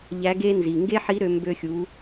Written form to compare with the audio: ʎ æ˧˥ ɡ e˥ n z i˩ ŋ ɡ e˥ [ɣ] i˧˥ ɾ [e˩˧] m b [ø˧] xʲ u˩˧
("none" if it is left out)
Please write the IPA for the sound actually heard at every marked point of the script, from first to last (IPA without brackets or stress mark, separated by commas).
ħ, ø˩˧, ø˧